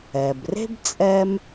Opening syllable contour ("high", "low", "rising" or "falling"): low